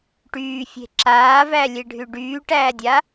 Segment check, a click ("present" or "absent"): present